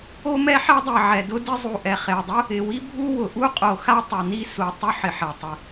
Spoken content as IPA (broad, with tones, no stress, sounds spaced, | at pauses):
o˥ m ɛ˥ ħ ɛ˥ dˤ e˩ ʕ ɛ˩ d ʊ˥ d ɪ˥ zˤ u˩ ʔ ɛ˩ χ e˩ dˤ ʊ˥ | ɪ˩ w i˥ bʱ u˥ w ʊ˩ ʔ u˥ qʼ o˩ x a˥ tˤ ʊ˩ n i˥ s u˩ tˤ ʊ˥ ħ ɪ˩ ħ ɛ˩ tˤ ɪ˩